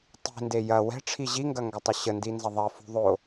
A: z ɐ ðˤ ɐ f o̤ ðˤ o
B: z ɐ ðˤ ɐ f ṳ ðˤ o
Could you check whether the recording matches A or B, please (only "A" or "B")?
B